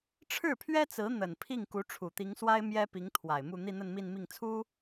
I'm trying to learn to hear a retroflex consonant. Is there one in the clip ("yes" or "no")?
yes